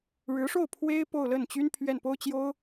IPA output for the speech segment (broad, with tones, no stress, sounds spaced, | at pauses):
ɻ ɻ̩˧˥ ʂ o˥˩ ʊ̯ pʰ w e˥ ɪ̯ p o˥˧ ʊ̯ l ə˥˩ n t͡ɕ y˥ n pʰ ɥ ɛ˥˩ n p o˥ ʊ̯ t͡ɕ j o˥ ʊ̯